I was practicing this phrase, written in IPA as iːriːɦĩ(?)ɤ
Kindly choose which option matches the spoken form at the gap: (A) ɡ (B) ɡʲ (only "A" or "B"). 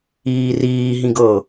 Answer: A